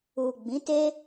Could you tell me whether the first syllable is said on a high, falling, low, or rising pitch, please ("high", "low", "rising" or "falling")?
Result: low